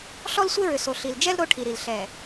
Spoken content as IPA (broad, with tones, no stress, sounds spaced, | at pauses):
ɬ ɔ˦ l sʷ e˦ ɹ ʏ˨ s o˨ ɬ i˨ l d͡ʒ ɛ˦ l ɾ o˦ ʈʰ i˨ ɾ i˨ l ɬ ɛ˨